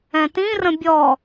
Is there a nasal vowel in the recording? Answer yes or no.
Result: yes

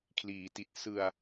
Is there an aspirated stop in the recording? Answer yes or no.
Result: yes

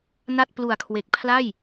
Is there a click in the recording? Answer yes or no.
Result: no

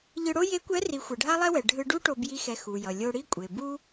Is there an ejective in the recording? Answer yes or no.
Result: yes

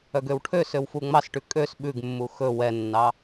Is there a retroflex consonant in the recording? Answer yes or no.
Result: yes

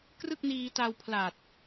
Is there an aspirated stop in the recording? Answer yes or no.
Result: yes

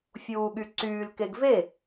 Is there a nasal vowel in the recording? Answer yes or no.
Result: no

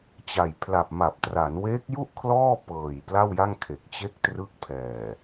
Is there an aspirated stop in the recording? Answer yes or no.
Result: yes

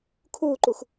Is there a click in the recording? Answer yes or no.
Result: yes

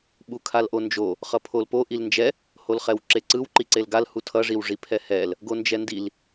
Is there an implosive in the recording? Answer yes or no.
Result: yes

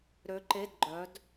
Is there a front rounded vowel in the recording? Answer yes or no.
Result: yes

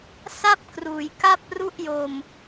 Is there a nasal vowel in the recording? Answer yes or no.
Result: no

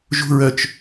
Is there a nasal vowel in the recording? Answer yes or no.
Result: no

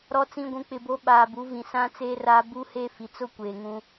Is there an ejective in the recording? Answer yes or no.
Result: no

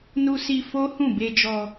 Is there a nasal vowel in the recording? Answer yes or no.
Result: yes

